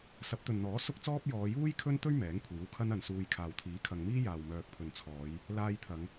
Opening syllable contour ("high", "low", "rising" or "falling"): rising